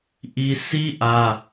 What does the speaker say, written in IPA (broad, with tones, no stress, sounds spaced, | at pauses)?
ʔ i˦ sʰ i˦ ʔ ä˦